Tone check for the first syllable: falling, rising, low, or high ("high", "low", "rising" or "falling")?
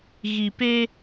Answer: low